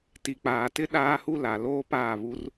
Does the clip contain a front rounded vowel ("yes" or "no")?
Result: no